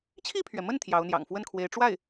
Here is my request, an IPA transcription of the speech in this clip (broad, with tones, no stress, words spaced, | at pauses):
t͡ɕʰi˥˩pʰɥɛ˩mə˥˩n t̪ʰjɑ˧˥ʊ̯n̪jɑ̰˨˩ŋ fwə˥˩nkʰwe˧˥ɪ̯ʈ͡ʂwa˥˩ɪ̯